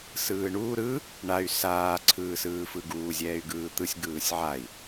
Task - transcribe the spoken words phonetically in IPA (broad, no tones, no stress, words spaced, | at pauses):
sɯːɳuː ɾɯ | ɳay̯ saː ǀʰɯːsɯːfɯɡuː zʲɛːy̯ɡɯːt̪ɯsʲ ɡɯːsʲʕai̯